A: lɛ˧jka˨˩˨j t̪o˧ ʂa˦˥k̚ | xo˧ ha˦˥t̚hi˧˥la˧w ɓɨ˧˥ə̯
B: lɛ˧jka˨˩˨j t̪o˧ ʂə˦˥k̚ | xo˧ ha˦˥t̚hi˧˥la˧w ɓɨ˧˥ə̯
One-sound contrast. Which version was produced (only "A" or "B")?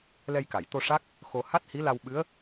A